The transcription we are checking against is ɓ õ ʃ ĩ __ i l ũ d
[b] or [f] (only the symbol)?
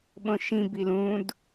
b